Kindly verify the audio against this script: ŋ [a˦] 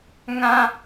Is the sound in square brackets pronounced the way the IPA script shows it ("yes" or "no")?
no